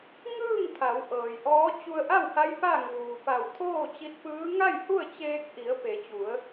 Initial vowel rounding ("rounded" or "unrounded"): unrounded